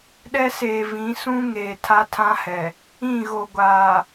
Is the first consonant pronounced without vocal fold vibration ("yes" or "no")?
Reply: no